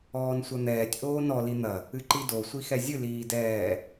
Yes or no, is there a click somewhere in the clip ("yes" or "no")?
yes